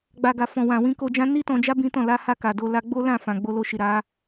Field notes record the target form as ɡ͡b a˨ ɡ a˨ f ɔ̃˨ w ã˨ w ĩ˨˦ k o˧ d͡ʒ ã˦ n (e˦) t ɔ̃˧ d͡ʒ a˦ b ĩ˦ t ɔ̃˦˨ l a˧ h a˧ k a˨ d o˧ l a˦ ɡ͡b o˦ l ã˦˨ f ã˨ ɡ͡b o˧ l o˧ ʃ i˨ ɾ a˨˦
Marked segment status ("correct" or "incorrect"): incorrect